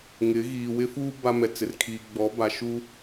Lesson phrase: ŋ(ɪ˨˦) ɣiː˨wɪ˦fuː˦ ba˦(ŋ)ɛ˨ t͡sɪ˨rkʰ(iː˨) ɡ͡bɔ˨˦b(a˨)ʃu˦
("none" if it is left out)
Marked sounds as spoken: ɪ˨˦, m, iː˨, a˨

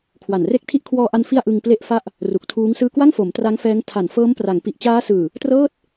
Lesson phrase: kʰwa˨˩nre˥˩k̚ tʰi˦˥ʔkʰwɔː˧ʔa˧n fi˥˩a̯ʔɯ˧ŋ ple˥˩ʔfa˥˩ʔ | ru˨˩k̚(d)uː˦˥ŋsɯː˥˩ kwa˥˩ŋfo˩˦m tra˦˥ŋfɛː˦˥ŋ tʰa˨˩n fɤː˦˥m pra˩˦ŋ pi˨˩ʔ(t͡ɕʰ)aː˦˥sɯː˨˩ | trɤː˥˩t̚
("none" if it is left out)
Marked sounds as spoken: tʰ, t͡ɕ

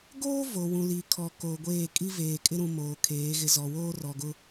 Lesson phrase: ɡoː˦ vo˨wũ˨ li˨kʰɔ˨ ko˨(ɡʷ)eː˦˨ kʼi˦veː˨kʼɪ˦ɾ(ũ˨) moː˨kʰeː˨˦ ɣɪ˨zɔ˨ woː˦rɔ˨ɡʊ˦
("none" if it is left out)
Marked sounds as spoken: ɡʷ, ũ˨

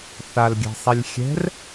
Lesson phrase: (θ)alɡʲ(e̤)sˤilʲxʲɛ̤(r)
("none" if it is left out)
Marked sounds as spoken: θ, ɛ̤, r

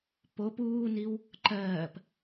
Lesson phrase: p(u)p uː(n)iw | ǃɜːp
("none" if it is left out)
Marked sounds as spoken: o, n

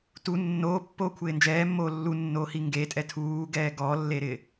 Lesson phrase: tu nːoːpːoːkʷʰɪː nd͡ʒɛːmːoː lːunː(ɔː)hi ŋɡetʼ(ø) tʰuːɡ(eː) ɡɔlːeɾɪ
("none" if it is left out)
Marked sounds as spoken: oː, ɛ, ɛː

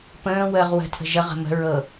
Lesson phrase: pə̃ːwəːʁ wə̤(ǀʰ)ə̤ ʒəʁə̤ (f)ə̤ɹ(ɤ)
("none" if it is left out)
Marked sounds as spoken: tʰ, m, ɤ

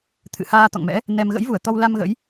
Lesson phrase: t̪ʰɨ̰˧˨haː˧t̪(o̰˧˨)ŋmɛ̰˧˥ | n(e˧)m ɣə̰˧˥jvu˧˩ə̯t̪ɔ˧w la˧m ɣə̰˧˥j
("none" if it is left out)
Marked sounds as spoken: ɔ̰˧˨, ɛ˧

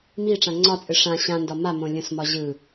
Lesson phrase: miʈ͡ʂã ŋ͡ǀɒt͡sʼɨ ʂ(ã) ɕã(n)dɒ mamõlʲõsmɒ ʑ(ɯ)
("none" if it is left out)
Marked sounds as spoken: ã, n, ɯ

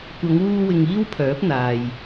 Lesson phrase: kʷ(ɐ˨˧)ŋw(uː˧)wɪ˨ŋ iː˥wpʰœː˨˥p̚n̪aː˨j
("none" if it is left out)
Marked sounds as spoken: ɐ˨˧, uː˧

